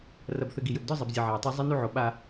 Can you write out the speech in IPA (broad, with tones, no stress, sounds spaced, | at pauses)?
r ɐ˨ b θ ɘ˨ ɡ i˨ j ɘ˨ b d ɔ˦ zˤ e˨ b zʲ ɐ˨ ʕ e˨ w tˤ o˦ zˤ ɘ˦ n u˦ ʕ o˨ ɓ a˦